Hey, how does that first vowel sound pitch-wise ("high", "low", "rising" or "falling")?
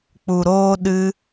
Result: low